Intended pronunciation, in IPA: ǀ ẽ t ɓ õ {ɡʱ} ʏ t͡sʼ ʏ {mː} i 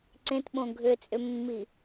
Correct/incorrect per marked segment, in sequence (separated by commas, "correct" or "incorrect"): correct, correct